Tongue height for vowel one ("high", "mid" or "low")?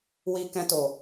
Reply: high